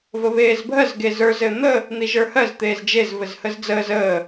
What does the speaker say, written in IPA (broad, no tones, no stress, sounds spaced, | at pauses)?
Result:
v ə β eː z bʱ ɜ z ɡ e z ə˞ z ɘ n̪ ə | n̪ i ʒ ə˞ h ɜ z t̪ eː z d͡ʒ e z v ɘ z h ə z d͡z əː z əː